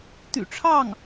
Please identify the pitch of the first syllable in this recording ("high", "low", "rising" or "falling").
low